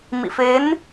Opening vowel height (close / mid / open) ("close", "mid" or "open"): close